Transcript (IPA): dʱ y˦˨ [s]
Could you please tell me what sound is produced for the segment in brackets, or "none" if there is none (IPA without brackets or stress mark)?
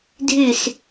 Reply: s